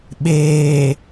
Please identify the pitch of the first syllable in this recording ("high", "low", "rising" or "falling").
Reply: low